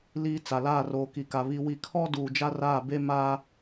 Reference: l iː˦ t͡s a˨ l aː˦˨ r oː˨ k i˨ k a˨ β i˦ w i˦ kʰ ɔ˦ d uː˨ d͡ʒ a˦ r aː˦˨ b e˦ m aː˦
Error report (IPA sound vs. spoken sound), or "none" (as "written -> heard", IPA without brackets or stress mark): none